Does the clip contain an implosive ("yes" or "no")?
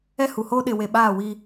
yes